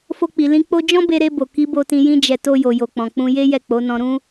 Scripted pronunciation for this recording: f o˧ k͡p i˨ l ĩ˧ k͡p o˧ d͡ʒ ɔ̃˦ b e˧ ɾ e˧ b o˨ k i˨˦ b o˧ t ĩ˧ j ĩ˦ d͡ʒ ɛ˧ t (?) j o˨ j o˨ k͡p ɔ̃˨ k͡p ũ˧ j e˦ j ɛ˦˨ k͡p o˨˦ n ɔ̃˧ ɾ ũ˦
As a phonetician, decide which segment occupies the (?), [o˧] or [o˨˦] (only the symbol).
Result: o˧